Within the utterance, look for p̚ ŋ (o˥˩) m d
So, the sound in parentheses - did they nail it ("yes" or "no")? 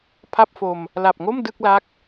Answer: yes